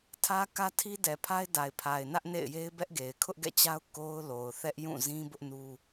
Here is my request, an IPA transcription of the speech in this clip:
tʰ ä˦ k ä˦ tʰ i˦ d ɛ˨ pʰ a˦ ɪ̯ d a˨ ɪ̯ pʰ a˨ ɪ̯ n ä˦ ʔ n ḛ˦˨ ɪ̯ j e˦ ɪ̯ b ɛ˦ ʔ ɡ e˨ ɪ̯ kʰ ʊ˦ ʔ ɡ ɛ̰˦˨ t͡ɕ a˦ ʊ̯ k o˦ ʊ̯ l o˨ ʊ̯ θ ɛ˦ ʔ j ũ˦˨ z ĩ˦ b ʊ˦ ʔ n u˦

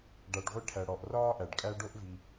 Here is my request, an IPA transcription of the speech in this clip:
ɖ a˩ ɖ ʁʷ i˨ ʈʰ æ˩ ɽ ɔ˩ ʔ r ɒː˥ ʔ æ˩ ɖ kʼ æ˦ ɖ o˦ ʔ v i˨

